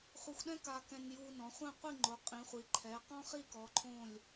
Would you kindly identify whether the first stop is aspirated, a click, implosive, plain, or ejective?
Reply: implosive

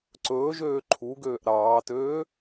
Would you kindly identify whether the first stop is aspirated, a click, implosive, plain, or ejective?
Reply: click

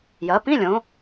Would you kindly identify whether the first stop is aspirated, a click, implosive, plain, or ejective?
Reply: plain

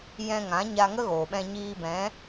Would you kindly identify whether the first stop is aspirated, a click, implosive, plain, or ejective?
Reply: implosive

